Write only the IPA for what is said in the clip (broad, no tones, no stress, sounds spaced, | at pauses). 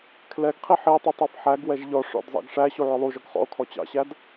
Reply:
kʰ l ɛ ɡ qʰ i ħ i e̯ tˤ i tˤ ɑ f ħ æ ɡ w ɛ ʒ ʎ ɔ ʂ ɔ̰ d zˤ ɑ̰ ɡ ʂ æ ɕ u ʕ ʊ lˠ u ʒ ɔ ɡ χ ɔ̰ o̯ kʰ ɔ t͡ɕ ɑ̰ ɕ æ d